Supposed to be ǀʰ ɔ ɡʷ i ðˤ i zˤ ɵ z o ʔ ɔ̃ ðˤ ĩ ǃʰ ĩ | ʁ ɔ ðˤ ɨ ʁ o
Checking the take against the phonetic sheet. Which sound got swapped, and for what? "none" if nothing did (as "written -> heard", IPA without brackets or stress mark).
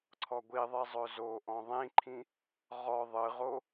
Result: none